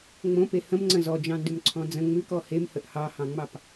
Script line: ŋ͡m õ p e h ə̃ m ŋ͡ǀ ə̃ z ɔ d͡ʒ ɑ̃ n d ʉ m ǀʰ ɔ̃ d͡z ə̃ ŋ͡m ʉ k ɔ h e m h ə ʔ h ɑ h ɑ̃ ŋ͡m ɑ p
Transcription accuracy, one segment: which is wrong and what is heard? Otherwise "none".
none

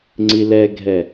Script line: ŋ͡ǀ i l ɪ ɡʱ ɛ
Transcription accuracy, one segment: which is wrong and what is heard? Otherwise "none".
ɪ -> ɛ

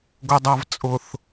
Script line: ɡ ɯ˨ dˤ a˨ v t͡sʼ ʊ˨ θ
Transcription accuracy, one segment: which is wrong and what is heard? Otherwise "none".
ɯ˨ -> ʊ˨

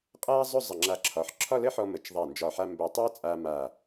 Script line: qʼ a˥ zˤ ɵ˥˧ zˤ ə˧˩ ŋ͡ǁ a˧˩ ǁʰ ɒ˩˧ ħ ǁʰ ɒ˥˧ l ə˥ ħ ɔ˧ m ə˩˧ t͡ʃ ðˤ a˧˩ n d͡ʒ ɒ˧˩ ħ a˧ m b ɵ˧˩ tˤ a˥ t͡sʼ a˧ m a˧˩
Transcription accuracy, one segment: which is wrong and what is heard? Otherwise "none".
none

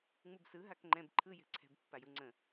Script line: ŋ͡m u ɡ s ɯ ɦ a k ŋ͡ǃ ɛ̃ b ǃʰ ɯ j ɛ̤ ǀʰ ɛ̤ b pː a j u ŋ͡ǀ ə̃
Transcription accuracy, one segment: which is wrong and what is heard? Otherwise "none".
ɡ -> b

